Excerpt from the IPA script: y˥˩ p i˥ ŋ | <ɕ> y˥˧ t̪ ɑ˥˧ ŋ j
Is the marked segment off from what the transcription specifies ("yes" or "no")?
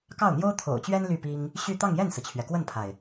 no